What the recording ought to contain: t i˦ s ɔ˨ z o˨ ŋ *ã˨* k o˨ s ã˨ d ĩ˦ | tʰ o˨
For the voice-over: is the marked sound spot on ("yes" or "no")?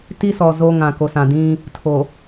yes